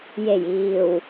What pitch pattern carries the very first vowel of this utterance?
low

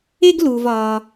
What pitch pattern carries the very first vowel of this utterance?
high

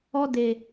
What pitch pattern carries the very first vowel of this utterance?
high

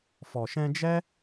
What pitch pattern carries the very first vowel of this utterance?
low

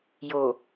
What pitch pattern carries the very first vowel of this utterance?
low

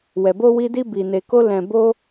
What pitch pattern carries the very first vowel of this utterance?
low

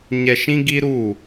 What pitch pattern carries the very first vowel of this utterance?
low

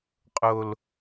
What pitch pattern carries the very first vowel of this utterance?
low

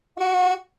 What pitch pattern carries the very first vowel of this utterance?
high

